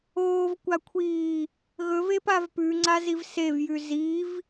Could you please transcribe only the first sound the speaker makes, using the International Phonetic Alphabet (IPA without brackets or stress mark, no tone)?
oː